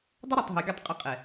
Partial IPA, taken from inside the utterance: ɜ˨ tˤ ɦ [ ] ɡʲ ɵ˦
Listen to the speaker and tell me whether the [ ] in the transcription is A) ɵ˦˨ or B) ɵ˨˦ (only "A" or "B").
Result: B